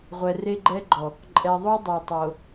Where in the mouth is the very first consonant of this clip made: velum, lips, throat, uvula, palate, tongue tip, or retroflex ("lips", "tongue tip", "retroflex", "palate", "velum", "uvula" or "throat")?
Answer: uvula